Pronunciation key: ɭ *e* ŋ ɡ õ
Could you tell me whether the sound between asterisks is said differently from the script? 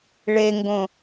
no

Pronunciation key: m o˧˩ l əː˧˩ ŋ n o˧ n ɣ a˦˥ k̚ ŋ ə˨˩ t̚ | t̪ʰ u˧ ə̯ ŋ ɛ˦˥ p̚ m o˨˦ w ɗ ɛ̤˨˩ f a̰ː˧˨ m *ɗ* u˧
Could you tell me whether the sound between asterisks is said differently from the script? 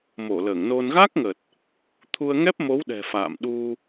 no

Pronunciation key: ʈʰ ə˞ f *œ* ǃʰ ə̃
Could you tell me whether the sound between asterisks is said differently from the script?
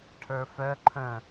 no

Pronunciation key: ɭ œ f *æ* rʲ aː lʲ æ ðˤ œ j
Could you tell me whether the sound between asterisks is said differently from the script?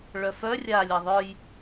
yes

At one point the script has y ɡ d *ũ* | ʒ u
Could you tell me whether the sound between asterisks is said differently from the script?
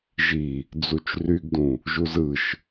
no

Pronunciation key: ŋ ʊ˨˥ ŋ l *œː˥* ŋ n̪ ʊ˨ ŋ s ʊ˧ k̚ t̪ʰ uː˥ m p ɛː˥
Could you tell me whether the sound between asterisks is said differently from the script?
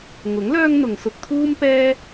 no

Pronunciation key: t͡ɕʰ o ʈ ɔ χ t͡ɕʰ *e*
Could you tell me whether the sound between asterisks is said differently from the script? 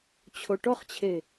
no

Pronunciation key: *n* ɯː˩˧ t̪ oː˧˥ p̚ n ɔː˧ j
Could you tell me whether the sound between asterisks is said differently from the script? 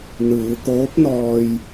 no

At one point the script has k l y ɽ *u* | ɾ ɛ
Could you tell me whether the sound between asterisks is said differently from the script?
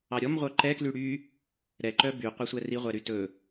yes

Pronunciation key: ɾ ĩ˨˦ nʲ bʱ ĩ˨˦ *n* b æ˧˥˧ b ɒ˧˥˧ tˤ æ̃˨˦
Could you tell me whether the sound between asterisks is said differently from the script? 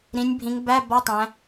yes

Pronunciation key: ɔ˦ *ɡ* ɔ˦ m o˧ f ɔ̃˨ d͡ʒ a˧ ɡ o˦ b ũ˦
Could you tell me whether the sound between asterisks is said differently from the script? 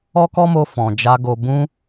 yes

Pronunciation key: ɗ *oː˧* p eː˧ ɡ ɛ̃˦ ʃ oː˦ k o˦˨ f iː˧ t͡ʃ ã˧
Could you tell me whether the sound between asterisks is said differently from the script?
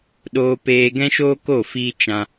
no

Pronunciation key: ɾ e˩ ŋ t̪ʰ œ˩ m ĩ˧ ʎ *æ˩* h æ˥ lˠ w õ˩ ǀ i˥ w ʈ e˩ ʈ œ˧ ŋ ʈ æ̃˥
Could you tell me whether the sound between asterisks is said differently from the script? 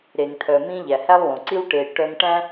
no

